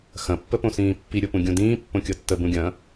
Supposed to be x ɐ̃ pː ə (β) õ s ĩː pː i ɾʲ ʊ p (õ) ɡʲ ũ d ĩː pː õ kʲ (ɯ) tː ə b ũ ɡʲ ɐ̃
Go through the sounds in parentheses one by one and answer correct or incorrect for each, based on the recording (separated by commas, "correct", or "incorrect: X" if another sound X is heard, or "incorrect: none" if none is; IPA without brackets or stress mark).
incorrect: p, incorrect: ũ, incorrect: ɤ